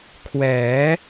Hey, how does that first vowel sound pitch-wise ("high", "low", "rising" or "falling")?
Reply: rising